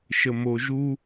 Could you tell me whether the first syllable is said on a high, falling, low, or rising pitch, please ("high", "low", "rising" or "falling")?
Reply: low